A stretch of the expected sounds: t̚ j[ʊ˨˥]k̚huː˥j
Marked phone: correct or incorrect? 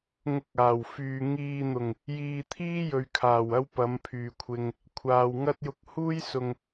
incorrect: ʊ˧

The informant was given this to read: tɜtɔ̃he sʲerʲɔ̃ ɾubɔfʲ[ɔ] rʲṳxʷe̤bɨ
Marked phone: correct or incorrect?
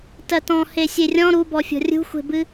incorrect: ɔ̤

